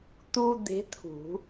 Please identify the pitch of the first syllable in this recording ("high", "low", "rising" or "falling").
high